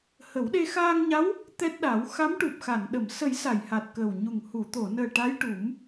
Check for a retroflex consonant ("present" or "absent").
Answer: present